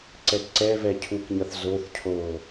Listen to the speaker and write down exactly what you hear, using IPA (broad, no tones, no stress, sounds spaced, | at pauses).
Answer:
ǀ ɛ t ǀ ɛ v ɛ cʰ u k ɲ ʌ θ z o θ cʰ oː